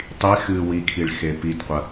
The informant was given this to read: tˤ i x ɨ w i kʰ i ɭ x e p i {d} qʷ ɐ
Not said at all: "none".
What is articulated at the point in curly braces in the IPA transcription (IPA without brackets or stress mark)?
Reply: d